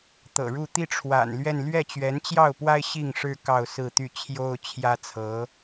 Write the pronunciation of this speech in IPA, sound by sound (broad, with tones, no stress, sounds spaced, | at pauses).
t̪ ɤ̰˨˩ ɻ u˥˧ t̪ i˥˩ ʈ͡ʂʰ w a̰˨˩ n l ɥ ɛ˥˧ n l ɥ ɛ˥˩ t͡ɕ ɥ ɛ˧˥ n t͡ɕ j ɑ˥˩ ʊ̯ p w a˥ ɪ̯ ɕ i˥˩ ŋ ʂ ɻ̩˥ k ɑ˥˧ ʊ̯ s ɹ̩˥˧ t̪ y˥˩ t͡ɕʰ j o˥ ʊ̯ t͡ɕʰ j ä˥ t͡sʰ ɤ˧˥